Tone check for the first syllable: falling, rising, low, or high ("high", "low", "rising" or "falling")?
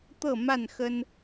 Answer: falling